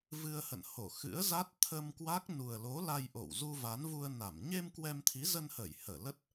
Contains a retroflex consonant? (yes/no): no